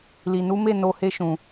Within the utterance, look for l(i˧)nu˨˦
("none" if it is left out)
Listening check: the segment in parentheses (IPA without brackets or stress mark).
i˨